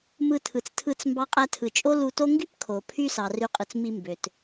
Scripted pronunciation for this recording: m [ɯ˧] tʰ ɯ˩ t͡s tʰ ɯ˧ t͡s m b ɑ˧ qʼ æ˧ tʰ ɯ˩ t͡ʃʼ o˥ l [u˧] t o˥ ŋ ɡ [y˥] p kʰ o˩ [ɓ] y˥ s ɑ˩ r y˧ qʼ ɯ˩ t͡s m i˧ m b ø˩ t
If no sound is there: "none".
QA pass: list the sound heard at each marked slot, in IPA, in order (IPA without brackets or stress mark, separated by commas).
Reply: ɯ˧, u˧, y˥, pʰ